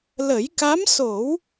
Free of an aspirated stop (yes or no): yes